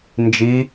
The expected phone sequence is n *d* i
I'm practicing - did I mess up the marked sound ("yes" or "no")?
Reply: yes